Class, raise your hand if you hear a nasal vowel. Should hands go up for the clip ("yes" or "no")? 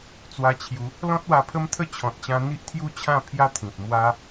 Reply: yes